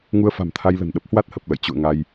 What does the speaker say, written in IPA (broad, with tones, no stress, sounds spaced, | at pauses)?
ŋ u˧ ə̯ f a̤˨˩ m t̪ʰ a˧ j l ə̤˨˩ n ɗ ə˦˥ p̚ h w a˦˥ t̚ h ə˨˩ p̚ l ə̰˧˨ j t͡ɕ ṵ˧˨ ə̯ ŋ a˧ j